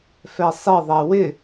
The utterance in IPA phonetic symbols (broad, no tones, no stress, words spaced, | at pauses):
fɛsˤɪðˤɛ wɪ